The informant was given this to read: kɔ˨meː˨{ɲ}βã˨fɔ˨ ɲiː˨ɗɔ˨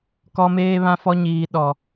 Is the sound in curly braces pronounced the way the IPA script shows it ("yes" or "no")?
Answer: no